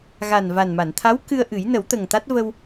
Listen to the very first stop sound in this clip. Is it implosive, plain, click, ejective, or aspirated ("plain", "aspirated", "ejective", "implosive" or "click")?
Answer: aspirated